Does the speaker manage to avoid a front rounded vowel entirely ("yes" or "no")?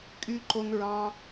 no